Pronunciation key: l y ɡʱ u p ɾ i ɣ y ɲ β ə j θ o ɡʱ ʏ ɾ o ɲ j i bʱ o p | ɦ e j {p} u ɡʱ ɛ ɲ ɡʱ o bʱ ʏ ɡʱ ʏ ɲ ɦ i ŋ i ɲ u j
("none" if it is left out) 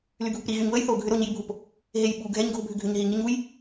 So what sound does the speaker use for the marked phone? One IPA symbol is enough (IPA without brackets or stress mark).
ɓ